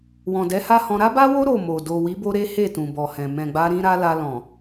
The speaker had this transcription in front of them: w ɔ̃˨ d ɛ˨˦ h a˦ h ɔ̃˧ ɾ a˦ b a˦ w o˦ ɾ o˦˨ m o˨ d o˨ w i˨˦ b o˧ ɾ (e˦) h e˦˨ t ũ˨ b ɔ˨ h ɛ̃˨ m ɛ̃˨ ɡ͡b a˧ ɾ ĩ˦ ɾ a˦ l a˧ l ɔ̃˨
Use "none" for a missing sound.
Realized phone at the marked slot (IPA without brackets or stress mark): e˦